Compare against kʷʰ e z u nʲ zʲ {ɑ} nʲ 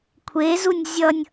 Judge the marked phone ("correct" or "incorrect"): incorrect